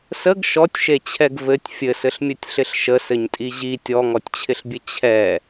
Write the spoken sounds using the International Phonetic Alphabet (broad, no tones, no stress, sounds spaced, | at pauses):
s ə ɡ ʃ ɔ tʲ ʃ e t͡ɕʰ ɛ ɡ v ɘ tʲ fʲ ɘ s ɘ ɬ mʲ ɘ tʲ ɬ ɪ ɬ ʃ ə s ɘ ɲ tʼ i ʑ i tʲ ɔ ŋ ɔ tʲ t͡ɕʰ ɪ ɬ bʲ ɘ t͡ɕʰ ɛ